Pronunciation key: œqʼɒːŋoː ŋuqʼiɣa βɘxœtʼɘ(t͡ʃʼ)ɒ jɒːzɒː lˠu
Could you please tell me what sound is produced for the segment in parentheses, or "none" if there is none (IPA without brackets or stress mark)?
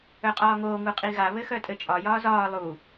t͡ʃʼ